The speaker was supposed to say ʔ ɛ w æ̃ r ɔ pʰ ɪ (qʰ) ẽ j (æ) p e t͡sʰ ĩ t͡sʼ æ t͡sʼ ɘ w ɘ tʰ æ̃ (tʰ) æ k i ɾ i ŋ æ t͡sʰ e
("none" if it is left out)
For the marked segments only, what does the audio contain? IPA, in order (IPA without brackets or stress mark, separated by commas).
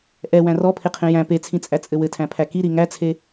qʰ, æ̃, pʰ